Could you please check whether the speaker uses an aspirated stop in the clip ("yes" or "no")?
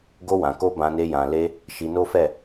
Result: no